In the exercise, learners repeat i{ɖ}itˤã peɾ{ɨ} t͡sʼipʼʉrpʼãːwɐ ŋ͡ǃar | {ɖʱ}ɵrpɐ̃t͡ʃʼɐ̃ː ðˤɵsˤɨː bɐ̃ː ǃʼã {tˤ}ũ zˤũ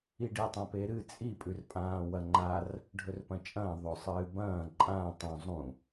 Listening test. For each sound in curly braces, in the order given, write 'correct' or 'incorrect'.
correct, correct, correct, correct

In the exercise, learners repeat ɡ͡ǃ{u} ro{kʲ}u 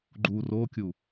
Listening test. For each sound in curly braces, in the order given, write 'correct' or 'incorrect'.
correct, correct

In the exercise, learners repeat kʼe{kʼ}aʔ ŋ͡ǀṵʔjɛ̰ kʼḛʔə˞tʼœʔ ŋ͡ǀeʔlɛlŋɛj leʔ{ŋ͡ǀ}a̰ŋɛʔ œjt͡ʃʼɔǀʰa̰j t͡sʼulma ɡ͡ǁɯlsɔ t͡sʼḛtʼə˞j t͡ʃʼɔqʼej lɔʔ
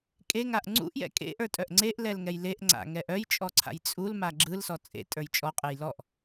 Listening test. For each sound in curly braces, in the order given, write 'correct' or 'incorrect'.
incorrect: ŋ, correct

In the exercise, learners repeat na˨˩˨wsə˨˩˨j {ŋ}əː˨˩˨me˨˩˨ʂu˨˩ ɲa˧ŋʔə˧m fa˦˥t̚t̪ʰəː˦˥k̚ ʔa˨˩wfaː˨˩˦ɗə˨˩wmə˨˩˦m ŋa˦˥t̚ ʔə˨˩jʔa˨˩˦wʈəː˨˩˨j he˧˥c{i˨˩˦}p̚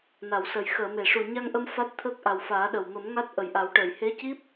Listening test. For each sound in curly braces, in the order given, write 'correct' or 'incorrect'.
incorrect: x, incorrect: i˦˥

